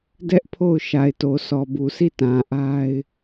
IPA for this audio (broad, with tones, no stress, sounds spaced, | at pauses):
d ɛ˦ ʔ pʰ o˦˨ ʊ̯ ʃ a˨ ɪ̯ t o˨ sʰ ɔ˨ b u˨ sʰ i˦˨ t ã˨ ʔ a˦ ɪ̯